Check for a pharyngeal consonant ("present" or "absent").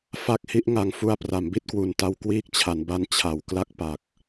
absent